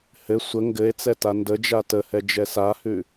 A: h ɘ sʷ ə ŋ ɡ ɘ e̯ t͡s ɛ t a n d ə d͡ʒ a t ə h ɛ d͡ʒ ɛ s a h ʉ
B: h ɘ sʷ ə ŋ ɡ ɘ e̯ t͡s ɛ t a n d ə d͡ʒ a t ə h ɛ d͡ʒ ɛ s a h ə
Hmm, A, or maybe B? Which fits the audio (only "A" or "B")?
A